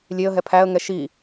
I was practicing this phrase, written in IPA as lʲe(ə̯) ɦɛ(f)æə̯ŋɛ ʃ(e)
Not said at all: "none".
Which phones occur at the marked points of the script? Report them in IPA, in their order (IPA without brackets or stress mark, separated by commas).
ə̯, pʰ, i